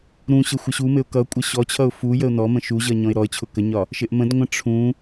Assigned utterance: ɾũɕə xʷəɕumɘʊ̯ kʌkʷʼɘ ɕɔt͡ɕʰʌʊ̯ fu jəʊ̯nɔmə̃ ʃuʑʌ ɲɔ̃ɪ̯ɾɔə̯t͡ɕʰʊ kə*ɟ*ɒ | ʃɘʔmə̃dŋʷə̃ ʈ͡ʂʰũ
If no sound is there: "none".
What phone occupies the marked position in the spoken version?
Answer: ɲ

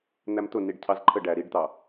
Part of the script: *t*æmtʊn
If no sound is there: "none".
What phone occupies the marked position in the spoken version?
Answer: n̪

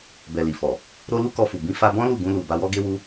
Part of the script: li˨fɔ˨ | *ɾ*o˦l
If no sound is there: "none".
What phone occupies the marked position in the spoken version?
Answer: ɾ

